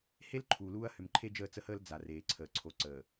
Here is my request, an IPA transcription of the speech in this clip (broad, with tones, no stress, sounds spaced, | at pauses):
h e˦ l ǃʰ uː˨ l uː˦ ɐ̯ h ʏ˨ m ǃʰ e˦ d͡ʒ əː˦˨ t͡s ə˦ h əː˦ l d͡z a˨ r eː˨ ǀʰ əː˨ ǀʰ o˨ ǀ əː˨